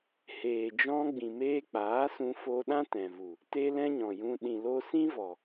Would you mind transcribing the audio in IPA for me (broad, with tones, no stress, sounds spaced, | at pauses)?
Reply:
h eː˨ d͡ʒ ɔ̃˧ ɡ͡b ĩ˨ m eː˧ k͡p aː˨˦ s ũ˧ f o˦ ɗ ã˦ t ɛ̃˨ v u˨ | t e˦ l ɛ̃˦ ɲ ɔ̃˨ j ũ˧ ɗ ĩ˨ l o˧ s ĩ˦ v ɔ˨